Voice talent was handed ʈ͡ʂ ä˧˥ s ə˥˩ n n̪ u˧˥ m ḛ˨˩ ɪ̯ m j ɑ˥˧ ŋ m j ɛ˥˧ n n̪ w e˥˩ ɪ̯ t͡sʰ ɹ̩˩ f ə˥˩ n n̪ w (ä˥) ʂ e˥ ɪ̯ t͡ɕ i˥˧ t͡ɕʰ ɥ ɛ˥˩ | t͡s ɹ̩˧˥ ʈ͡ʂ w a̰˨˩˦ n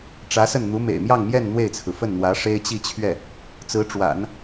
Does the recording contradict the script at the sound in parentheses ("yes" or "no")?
yes